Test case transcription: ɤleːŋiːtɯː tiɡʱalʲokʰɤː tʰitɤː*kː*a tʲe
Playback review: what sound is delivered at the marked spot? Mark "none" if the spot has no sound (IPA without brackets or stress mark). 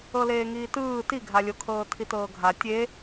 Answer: ɡʱ